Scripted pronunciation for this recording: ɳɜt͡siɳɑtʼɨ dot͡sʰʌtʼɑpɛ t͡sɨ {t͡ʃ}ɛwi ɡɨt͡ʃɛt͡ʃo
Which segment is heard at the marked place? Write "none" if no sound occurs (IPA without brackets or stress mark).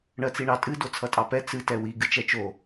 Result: t